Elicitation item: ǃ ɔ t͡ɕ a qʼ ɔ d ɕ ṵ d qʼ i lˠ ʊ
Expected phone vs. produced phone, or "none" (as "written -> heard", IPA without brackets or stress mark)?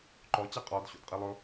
none